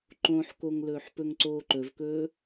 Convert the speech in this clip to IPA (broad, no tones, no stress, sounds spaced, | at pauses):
ǃ õ ħ k o ŋ l ɵː ħ p ɵ ŋ ǀ oː ǃ ɵ v k ɵː